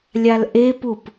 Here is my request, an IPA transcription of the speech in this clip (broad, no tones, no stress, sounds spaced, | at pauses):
lʲ a l ʔ e p u p